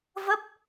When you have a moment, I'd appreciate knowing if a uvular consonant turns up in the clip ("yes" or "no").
no